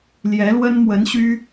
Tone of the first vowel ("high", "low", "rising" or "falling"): rising